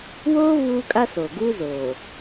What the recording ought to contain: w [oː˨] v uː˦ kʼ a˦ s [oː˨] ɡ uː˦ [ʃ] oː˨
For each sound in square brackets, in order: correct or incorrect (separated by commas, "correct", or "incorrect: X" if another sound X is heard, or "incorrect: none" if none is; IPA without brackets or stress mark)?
incorrect: oː˦, correct, incorrect: z